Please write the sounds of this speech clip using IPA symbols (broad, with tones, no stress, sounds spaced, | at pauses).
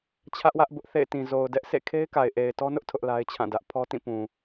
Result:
t͡ɕʰ ä˦ ʔ w ä˦ ʔ b ʊ˦ ʔ θ ḛ˦˨ ɪ̯ t ĩ˨ z o˨ ʊ̯ d ɛ˦ ʔ sʰ ḛ˦˨ kʰ e˦ ɪ̯ k a˨ ɪ̯ ʔ e˨ ɪ̯ t ɔ˦ n ʊ˦ ʔ tʰ ʊ˦ ʔ l a˦ ɪ̯ t͡ɕʰ ã˦˨ d ä˦ ʔ pʰ ɔ˦ t ĩ˦˨ p ũ˨